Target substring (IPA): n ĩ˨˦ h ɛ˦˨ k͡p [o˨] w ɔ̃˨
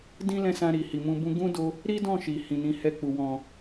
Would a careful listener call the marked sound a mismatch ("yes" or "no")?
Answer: yes